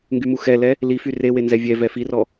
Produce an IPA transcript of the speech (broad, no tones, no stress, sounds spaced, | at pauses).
ŋ ɡ y m u x ɛ l ɛ | l i f y r e w e n z ɛ vʲ ɛ v ɛ f i r ɔ